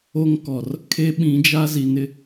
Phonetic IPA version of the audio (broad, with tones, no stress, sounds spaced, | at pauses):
o˦ ŋ k ɔ˨ r | kʰ e˦ ɓ ĩ˨˦ d͡ʒ a˦ z i˨ n ɪ˦